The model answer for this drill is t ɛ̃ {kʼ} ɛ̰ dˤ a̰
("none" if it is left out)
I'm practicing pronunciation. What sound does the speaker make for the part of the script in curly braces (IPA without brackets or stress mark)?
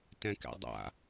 k